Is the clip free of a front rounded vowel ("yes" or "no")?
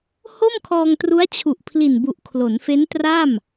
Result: yes